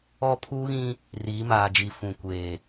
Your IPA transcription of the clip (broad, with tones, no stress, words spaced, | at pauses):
ɔ˦ pʰuː˦ɣĩ˦ | riː˨˦ maː˨d͡ʒi˨ fũ˨kʷeː˨